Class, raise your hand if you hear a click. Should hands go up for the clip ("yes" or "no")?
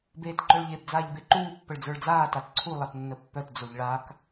yes